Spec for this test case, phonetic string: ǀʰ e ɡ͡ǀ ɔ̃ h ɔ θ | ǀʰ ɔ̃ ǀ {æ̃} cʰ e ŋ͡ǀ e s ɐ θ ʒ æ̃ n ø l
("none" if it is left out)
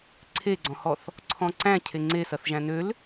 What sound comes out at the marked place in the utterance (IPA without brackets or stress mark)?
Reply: æ̃